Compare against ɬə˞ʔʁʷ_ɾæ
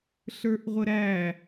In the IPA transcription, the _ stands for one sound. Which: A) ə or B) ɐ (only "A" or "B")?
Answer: A